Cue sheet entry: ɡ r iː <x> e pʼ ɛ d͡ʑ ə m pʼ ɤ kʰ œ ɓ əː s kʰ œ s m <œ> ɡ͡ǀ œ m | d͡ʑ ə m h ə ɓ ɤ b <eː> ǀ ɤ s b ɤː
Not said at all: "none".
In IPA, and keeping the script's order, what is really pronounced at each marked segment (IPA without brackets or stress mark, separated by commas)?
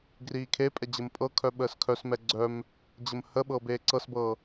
kʰ, ɛ, eː